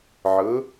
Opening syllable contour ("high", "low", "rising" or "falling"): rising